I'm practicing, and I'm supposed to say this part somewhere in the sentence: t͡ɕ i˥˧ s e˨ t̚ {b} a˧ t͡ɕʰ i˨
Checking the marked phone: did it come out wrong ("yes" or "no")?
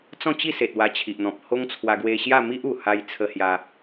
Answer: yes